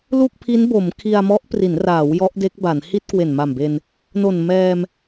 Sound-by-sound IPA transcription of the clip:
l u˥˩ k̚ pʰ i˦˥ n b o˩˦ m kʰ i˧ a̯ m ɔ˦˥ ʔ p r i˩˦ n r aː˩˦ w j ɔ˦˥ ʔ d e˦˥ k̚ b a˩˦ n h i˥˩ t̚ k w e˨˩ n m a˨˩ m b e˧ n | n o˨˩ n m ɛː˧ m

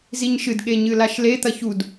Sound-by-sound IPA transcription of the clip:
z i ɲ ʃ ɨ d ɠ e ɲ ɨ l a ʃ l e t̪ ɐ ç u d

